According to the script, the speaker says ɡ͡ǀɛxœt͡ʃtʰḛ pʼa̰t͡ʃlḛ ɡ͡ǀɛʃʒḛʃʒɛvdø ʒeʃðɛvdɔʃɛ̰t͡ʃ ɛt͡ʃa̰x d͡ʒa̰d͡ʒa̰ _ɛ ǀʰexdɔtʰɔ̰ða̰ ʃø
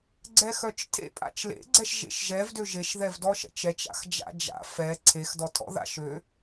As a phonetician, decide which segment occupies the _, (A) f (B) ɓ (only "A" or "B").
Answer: A